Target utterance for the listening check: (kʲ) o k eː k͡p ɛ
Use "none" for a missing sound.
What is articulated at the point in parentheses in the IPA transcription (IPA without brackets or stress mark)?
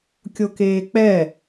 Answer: kʲ